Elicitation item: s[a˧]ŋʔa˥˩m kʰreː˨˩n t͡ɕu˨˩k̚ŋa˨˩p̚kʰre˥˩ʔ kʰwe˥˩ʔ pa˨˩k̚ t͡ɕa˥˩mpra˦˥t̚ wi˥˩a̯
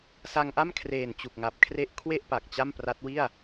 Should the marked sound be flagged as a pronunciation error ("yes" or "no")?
no